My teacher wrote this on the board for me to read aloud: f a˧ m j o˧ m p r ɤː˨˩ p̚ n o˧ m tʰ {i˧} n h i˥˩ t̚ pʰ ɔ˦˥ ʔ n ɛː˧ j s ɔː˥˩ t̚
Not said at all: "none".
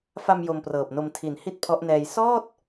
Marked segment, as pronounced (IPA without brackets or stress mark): i˩˦